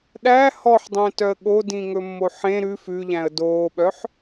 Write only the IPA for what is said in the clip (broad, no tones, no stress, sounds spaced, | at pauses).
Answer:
ɗ æ h ɔ ħ dˤ ɛ̃ t œ ə̯ ɠ o d ĩ ŋ ɵ mː o ħ ẽ ɾ ʉ f ʉ ʎ æ̃ ə̯ d oː ɓ œ ħ